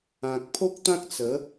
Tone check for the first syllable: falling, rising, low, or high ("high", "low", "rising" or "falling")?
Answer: low